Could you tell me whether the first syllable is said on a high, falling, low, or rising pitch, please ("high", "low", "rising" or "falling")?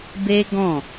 high